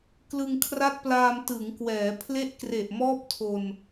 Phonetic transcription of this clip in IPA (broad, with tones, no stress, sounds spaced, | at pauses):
k l ɯ˧ ŋ kʰ r a˦˥ t̚ p l aː˧ m t ɯ˩˦ ŋ k w ɛː˩˦ pʰ l e˦˥ ʔ k r e˨˩ ʔ m ɔː˥˩ p̚ tʰ o˧ n